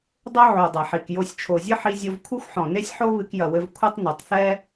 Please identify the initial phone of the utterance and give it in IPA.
dˤ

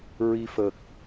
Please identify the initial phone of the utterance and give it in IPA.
ɹ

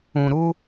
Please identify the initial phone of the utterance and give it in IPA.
ũ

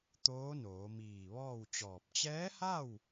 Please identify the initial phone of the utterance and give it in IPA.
t̪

